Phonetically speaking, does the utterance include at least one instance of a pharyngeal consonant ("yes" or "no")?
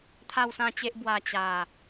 no